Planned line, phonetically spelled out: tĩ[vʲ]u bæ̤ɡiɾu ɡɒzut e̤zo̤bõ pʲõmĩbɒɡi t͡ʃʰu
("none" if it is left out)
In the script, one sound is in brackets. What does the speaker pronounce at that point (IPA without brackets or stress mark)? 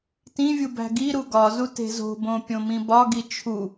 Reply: vʲ